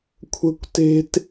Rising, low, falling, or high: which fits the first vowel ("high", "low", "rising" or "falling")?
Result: high